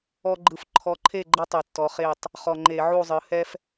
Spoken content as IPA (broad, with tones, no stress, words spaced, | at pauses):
ɔ˦ɡ͡ǃɯ˨˥f ǃʰɔ˨˥ǃʰe˥˨ɡ͡ǃɤ˦ tˤɯ˨˩tːɔ˨˥χe˥˨tˤ | χɔ˨˩ ŋ͡ǃe˧˩˧ʕu˥˨ zˤɯ˩˧hɛ˦f